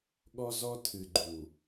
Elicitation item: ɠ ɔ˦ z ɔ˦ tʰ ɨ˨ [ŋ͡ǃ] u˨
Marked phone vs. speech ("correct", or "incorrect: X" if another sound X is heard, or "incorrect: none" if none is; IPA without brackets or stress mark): incorrect: ɡ͡ǃ